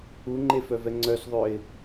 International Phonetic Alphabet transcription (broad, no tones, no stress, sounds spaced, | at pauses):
u ŋ͡ǃ e f œ v ɛ ŋ͡ǀ œ s ðˤ ø ɪ̯